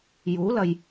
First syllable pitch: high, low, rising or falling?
rising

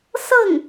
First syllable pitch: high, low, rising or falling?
falling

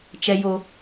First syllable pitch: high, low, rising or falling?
low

